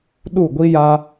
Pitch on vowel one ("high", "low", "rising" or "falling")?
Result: falling